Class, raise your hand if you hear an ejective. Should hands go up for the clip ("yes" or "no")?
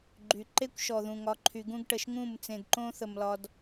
no